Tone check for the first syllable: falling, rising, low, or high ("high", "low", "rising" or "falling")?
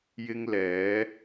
high